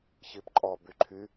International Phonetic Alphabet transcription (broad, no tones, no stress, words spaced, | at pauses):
çipǃʼɔ byǃʰy